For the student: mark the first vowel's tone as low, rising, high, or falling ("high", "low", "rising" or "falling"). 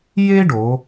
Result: high